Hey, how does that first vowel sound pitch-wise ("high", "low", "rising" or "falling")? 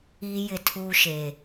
high